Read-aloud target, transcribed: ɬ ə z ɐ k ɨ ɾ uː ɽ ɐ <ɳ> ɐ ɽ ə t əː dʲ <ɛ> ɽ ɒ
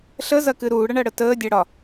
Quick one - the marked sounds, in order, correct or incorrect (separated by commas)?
correct, correct